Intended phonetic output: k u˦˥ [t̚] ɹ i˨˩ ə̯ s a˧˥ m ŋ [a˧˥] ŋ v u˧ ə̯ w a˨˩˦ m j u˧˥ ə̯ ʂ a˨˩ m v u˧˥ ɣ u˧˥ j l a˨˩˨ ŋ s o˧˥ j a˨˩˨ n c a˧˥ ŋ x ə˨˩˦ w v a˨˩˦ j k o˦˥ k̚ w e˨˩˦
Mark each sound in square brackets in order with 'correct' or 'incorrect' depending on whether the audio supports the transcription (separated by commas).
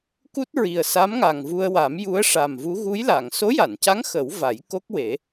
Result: correct, incorrect